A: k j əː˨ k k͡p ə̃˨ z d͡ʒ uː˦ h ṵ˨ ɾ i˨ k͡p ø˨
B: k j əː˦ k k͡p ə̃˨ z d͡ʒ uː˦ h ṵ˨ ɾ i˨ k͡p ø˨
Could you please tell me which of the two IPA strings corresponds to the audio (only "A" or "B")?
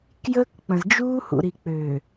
B